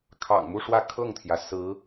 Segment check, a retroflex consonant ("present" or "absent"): present